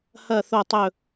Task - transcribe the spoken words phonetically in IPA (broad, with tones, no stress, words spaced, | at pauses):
hɐ˦˨ θo˦˨tˤɵ˦˨